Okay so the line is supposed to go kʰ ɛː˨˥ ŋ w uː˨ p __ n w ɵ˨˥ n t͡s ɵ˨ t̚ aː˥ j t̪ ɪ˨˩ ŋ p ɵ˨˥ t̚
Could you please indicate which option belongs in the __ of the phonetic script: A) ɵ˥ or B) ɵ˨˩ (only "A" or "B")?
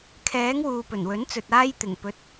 B